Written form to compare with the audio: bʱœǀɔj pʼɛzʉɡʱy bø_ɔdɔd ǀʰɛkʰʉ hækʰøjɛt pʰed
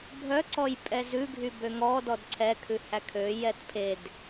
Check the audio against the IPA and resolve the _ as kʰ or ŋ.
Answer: ŋ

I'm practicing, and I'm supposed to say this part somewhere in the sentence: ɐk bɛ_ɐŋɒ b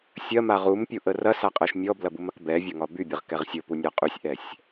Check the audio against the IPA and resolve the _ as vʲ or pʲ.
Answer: vʲ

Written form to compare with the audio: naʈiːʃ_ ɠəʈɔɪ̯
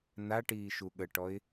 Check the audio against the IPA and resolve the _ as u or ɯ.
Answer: u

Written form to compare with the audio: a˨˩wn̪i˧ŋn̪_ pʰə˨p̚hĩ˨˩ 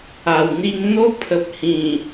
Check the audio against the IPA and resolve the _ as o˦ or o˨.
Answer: o˦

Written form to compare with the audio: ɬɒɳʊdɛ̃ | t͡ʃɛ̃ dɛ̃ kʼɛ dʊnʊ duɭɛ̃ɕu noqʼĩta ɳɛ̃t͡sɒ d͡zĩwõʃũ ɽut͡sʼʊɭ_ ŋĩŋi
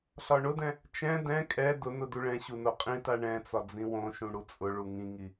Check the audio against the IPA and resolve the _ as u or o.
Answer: u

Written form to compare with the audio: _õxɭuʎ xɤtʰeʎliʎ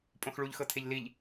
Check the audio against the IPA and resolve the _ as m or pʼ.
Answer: pʼ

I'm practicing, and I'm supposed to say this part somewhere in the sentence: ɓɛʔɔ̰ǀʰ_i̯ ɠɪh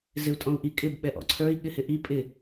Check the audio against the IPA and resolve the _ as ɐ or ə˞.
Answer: ə˞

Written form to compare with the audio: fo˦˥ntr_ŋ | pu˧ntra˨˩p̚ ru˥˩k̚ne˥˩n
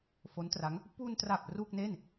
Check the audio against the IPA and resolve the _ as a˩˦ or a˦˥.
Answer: a˦˥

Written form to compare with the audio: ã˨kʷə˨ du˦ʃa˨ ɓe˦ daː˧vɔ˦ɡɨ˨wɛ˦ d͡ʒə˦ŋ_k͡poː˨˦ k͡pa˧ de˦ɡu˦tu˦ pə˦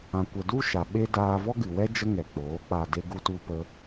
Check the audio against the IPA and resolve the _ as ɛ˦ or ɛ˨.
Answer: ɛ˨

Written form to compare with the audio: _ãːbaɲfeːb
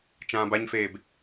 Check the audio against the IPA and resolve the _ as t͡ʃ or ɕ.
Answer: t͡ʃ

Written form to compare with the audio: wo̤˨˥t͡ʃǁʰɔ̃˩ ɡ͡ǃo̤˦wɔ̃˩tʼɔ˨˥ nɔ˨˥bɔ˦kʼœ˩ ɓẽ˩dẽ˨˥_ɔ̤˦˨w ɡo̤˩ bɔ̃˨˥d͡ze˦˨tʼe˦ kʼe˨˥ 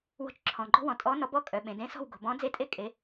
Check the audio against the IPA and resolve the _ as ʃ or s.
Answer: s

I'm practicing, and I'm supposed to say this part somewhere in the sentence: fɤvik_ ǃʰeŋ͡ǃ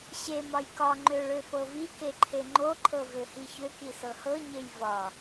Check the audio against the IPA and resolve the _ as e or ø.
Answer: e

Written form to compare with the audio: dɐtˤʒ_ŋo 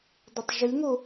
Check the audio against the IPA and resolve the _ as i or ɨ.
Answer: ɨ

